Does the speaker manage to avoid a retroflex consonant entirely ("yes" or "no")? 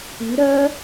yes